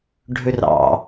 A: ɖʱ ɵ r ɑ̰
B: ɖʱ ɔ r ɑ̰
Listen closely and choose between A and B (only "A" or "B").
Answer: A